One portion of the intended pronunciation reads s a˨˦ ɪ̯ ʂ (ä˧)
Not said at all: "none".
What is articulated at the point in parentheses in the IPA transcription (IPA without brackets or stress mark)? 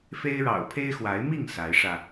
ä˧